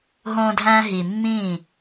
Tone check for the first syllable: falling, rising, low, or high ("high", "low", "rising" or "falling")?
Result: high